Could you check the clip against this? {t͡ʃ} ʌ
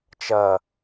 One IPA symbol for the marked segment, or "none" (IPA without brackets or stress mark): t͡ʃ